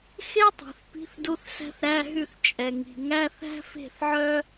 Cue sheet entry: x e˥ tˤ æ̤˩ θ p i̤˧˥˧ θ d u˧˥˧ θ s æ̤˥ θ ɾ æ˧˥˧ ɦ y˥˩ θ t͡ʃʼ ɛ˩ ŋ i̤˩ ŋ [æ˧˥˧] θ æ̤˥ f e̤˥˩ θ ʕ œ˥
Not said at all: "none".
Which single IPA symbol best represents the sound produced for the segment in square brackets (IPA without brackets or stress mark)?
æ˧˥˧